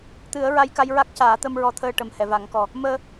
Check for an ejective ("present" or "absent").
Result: absent